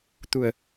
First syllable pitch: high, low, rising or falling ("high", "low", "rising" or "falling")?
low